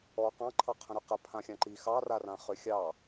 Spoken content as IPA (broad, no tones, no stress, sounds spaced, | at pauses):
ɔ q ɑ̃ ǃʰ ɑ qʰ ə̃ ɾ ʏ q ə pʰ ã xʲ ã ǃ i x ɑ r a r ã χ ʏ xʲ ɑ